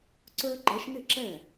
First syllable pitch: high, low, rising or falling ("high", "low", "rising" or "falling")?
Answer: high